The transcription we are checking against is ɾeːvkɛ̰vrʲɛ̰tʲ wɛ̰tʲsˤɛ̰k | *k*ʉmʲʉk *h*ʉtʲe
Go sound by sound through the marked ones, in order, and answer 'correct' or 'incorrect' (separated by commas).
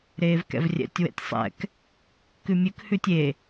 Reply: correct, correct